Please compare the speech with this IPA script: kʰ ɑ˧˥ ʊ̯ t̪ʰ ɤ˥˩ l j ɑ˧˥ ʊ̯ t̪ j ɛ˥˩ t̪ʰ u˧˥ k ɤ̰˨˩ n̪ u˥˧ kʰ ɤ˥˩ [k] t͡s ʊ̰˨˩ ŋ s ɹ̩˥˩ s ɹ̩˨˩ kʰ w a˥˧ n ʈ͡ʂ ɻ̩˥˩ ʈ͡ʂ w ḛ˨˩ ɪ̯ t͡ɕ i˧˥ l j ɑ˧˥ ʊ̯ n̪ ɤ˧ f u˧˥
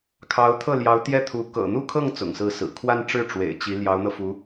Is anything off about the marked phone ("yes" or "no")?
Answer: yes